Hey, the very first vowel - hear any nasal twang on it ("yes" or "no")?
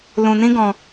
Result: yes